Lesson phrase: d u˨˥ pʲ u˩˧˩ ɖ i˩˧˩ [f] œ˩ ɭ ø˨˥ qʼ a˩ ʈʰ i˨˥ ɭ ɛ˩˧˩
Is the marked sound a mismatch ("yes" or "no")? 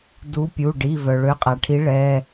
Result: yes